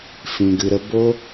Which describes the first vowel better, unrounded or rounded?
unrounded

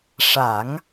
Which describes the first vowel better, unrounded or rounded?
unrounded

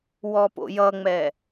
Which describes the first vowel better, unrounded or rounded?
rounded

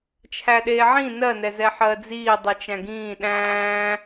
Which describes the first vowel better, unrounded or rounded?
unrounded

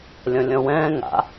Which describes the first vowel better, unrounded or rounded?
rounded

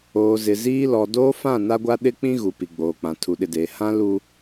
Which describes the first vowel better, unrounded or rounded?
rounded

